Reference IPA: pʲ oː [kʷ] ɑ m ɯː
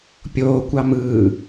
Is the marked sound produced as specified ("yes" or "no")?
yes